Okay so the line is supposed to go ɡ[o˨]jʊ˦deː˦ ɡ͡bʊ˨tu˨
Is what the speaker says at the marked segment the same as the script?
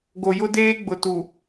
yes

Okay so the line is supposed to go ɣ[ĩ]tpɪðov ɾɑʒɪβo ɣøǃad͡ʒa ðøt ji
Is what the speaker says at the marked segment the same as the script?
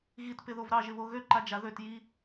no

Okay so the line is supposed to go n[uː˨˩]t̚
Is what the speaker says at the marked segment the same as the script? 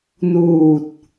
yes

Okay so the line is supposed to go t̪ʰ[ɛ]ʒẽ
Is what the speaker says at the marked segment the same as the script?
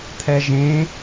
yes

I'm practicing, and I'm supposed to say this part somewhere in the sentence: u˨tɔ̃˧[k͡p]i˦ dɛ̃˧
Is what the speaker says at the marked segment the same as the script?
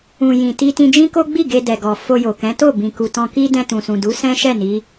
no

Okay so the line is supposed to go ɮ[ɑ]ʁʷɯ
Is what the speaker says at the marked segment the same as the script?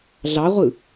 yes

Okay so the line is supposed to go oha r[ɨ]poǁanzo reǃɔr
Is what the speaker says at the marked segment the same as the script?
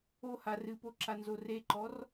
yes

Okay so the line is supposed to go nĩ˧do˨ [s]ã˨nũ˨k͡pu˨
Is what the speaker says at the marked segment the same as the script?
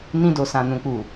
yes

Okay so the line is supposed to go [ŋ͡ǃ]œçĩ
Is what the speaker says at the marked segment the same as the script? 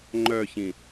yes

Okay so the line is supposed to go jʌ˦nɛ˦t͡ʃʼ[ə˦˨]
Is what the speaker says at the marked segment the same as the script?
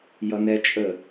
yes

